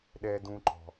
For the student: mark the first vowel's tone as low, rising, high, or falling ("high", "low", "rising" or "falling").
low